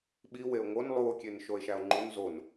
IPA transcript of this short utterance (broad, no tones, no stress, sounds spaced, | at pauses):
ɓ i w e o̯ ŋ o n lˠ u o̯ kʲ e n ʃ o e̯ ʃ æ o̯ ŋ͡ǃ u n z o n